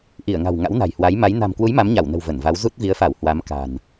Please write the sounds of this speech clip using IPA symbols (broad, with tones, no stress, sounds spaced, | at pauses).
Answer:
ʔ i˧˩ ə̯ ŋ a̤˨˩ w ŋ a̰˧˥ w n a̤˨˩ j h w a˨˦ j m a˨˦ j n a̤˨˩ m k w u˨˦ j m a˨˦ m ɲ a˧˩ w n ə̤˨˩ w v ə˧˩ n v a˨˦ w z u˦˥ t̚ v i˨˦ ə̯ f a˧˩ w h w a˨˦ m k a̤˨˩ n